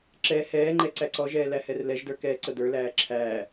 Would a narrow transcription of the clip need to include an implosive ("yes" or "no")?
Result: no